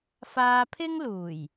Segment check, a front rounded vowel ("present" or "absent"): absent